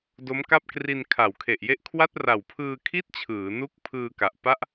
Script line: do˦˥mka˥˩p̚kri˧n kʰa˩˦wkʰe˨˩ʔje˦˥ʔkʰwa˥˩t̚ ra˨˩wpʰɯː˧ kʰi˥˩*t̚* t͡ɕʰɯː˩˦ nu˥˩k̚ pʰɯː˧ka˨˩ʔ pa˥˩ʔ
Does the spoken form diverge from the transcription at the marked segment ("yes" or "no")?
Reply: no